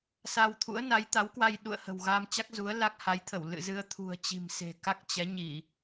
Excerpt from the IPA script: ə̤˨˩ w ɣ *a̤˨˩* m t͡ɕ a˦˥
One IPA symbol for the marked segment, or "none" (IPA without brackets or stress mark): a˧